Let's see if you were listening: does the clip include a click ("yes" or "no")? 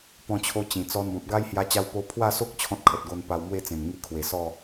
no